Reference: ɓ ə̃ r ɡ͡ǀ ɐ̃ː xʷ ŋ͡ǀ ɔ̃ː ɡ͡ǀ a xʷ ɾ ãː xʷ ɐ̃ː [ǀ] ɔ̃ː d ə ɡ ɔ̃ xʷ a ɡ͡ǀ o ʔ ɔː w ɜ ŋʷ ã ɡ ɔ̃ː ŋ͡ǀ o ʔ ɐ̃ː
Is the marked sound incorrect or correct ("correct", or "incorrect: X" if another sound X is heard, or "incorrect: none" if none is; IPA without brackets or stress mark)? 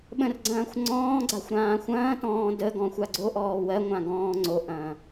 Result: incorrect: t